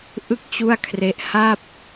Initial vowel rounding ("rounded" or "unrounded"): unrounded